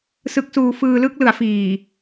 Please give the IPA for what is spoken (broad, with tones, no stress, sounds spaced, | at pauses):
s ɯ˦˥ k̚ s uː˧ f ɯː˧ l ɯ˥˩ k̚ l ɯ˩˦ a̯ f iː˨˩